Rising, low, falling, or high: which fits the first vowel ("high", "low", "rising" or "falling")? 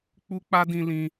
high